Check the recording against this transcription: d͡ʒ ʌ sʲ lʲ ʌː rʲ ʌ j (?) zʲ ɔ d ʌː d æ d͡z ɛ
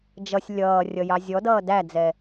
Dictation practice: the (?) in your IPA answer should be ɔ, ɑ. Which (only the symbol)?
ɑ